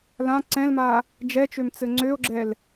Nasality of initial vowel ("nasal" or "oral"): nasal